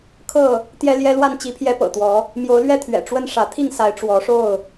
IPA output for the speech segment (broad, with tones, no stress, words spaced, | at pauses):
kʰɤ˥˨ | t̪jɛ˦ljɛ˦lwa˥˨n t͡ɕi˨˦pʰjɛ˨˦ pɤ̰˨˩t̪wɔ˨˦ | mjo˨˦ʊ̯lɥɛ˥˨t̪ʰɥɛ̰˨˩ ʈ͡ʂwə˦nʂä˨˦ t̪ʰi˥˨ŋsa˨˦ɪ̯ ʈ͡ʂwɔ˨˦ʂo˥˨ʊ̯